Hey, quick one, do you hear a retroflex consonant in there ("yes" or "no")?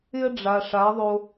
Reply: yes